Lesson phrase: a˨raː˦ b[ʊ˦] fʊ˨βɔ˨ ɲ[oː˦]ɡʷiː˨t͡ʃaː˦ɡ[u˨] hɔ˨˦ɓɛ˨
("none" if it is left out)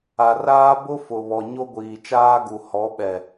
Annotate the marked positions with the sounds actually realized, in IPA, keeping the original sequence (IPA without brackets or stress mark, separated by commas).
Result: ʊ˦, o˦, u˨